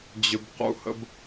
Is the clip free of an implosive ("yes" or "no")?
yes